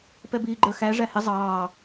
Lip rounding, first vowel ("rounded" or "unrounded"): unrounded